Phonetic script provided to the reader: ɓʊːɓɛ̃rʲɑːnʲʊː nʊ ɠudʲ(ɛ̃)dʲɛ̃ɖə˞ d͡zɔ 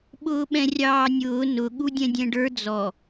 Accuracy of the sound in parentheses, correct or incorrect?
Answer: correct